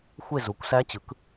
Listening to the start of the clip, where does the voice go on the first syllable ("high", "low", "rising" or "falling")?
falling